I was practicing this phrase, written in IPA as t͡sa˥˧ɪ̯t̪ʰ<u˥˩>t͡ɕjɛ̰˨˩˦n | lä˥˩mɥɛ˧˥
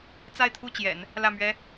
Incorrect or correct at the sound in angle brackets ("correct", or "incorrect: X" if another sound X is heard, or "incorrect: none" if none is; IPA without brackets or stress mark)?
correct